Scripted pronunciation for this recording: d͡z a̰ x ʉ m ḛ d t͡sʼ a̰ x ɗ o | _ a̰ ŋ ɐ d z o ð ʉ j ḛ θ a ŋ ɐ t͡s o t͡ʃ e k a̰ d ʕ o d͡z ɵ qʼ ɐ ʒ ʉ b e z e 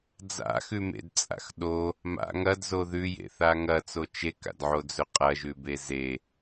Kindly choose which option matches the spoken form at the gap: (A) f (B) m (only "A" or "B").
B